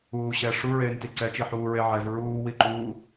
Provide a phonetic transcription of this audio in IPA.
uː ɕ ɛ ʂ u ɹ eː n t i ǀ ɛ t͡ʃ i ħ uː ɹ e ʕ ɛ v ɹ uː w i ǃ uː

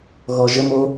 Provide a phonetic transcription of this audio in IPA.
ɣ ɔ ʒ ə m o

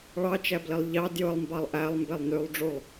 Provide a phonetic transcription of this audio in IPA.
ɭ ɑ t͡ʃ æ b l i lˠ ʎ ɑ d j ɯ lˠ m b ɑ lˠ ʔ æ lˠ m b e lˠ n y lˠ ɖ͡ʐ u lˠ

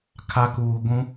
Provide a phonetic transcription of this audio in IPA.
kʰ a˨ k uː˨ ɡʷ ũ˦

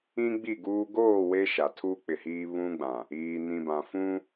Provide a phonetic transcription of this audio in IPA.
ĩ˦ ɡ͡b i˦˨ ɡ uː˦ ɡ oː˦˨ w e˦ ʃ a˨ tʰ u˦ k͡p ɪ˨ h iː˦ β ũ˦ ɡ͡b ã˨ | iː˨ n ĩ˨ b ã˨ f ũ˦

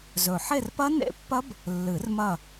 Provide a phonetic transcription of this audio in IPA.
z ɵ˨˩ ħ e˦˨ r p ɐ˦˥ n ḛ˦˥ pː ɐ˦˥ b | lː ɨ˨˩˦ r m ɐ˦˨

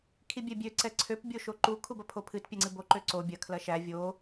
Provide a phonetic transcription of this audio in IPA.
kʰ i bʲ ɛ bʲ ø ǀ ɛ ǀʰ ø p bʲ o ʃ o ǃ u kʰ u b ɐ pʰ o pʰ ɨ t pʲ ɛ ŋ͡ǀ ɨ b o ǃ ø ǀ o bʲ ɐ kʰ l ɐ ʃ æ vʲ o

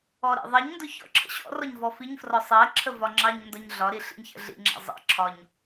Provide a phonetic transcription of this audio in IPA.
ɔ ɾ ḭ ðˤ ɜ ɲ n d ʊ ç ɔ̰ ǁʰ ə̰ ɕ ɔ̰ r ɔ ɲ v ɔ f i ɲ f r ɔ sˤ ɜ ǁʰ ə v ɒ ŋ͡ǁ ɑ ɲ n d ɒ ɲ ɮ ɒ ɾ i ɬ ḭ ɲ ç ə̰ ɮ ḭ ŋ͡ǁ ɑ̰ zˤ ə̰ ǁʰ ɒ ɲ

